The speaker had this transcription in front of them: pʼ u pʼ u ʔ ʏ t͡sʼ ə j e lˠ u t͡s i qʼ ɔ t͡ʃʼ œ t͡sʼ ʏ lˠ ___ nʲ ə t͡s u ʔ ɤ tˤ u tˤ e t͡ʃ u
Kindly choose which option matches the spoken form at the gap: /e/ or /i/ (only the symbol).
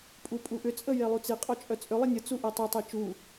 i